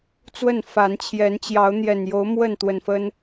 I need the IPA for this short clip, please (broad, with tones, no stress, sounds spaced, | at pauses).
t͡s w ə˥˨ n f a˨˦ n t͡ɕʰ j ɛ˨˦ n t͡ɕ j ɑ˨˦ ʊ̯ n̪ j ɛ˨˩ n j o˨˦ ʊ̯ m w ə˥˨ n t̪ w ə˨˩ n f ə˦ n